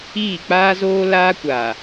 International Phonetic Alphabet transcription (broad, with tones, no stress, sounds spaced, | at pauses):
iː˦˨ k͡p aː˦ z oː˦ l aː˦ kʷ aː˨